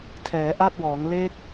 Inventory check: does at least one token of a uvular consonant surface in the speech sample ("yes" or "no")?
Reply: no